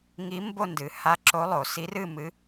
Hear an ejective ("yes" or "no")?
no